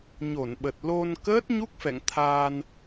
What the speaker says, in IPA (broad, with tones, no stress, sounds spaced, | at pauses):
ɲ o˧˩ n ɓ ə˨˩ t̚ l o˧ n k əː˦˥ t̚ ɲ u˦˥ k̚ f ɛ̰˧˨ ŋ t̪ʰ aː˧ n